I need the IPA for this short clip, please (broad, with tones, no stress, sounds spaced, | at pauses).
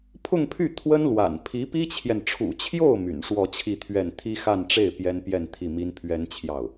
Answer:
pʰ ʊ˥˧ ŋ pʰ y˥˩ t̪ʰ w ə˥ n l w a̰˨˩ n pʰ i˧˥ p i˥ t͡ɕʰ j ɛ˨ n ʈ͡ʂʰ ṵ˨˩ t͡ɕʰ j o˥˩ ʊ̯ m y̰˨˩ n ʂ w ɔ˥˧ t͡ɕʰ i˥˧ t̪ʰ ɥ ɛ˥˩ n t̪ʰ i˥ x a˥˧ n ʈ͡ʂ e˥˩ ɪ̯ p j ɛ˥ n p j ɛ˥˧ n t̪ʰ i˥˩ m i˥ n pʰ ɥ ɛ˥ n t͡ɕʰ j ɑ˥˩ ʊ̯